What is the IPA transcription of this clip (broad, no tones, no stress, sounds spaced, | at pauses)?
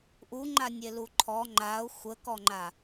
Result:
ʔ u ŋ͡ǃ a nʲ e l u ǃʰ ɔ ŋ͡ǃ a ʊ̯ xʷ ə k ɔ ŋ͡ǃ a